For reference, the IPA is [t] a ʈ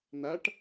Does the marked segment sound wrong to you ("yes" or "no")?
yes